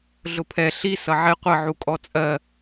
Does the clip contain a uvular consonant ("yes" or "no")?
yes